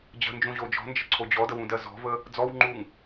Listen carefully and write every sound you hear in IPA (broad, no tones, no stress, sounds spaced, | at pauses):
d͡ʑ ə̤ n d͡ʒ ũ ʑ o d͡ʒ ɔ̤ n d͡ʒ ə ǀʰ o d͡ʑ ɔ d ə w ũ d ɜ z ɔ̤ v ə | d͡z ɔ w ŋ͡ǃ u ŋ